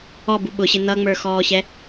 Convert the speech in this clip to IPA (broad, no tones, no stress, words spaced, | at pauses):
ɔbu ɓʊɕɪ n̪ʌŋ͡mə˞xɔːɕɛ